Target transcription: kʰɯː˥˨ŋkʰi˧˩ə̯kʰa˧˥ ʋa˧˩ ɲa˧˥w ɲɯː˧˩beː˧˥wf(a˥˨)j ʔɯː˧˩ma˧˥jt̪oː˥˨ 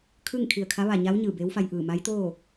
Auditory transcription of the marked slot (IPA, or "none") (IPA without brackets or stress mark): a˧